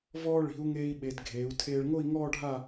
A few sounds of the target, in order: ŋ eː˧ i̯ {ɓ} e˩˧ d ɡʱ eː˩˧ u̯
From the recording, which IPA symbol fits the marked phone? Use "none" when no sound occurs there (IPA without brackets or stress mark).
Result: ɓ